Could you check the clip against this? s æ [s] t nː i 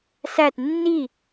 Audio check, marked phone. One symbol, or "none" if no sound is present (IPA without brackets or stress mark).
none